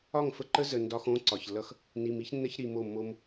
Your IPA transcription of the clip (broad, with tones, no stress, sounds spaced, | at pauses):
ɒ˦˨ ŋ f ə˦ ǃ ə˦ z ə˨ n d ɒ˦ x õ˦ ǀ ɒ˨ ç lː ʌ˦ x | n i˨ m i˦ ç nː ə˦ ç ɾ i˨ m o˦˨ mː o˦ m